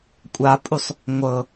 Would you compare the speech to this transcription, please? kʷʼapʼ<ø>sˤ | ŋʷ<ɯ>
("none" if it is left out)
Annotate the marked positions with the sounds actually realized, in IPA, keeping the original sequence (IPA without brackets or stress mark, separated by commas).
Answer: u, ɤ